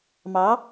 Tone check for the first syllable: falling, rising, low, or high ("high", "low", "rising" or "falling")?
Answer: rising